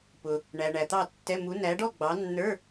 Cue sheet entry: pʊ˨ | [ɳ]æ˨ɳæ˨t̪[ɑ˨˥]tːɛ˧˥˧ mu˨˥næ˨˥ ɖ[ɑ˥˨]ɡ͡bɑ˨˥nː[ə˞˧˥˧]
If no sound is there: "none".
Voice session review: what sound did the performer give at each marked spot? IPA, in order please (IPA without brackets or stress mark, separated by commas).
ɳ, ɑ˥˨, ɔ˥˨, ə˞˧˥˧